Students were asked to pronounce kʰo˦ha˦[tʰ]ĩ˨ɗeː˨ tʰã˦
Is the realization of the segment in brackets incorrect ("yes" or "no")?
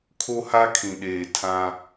yes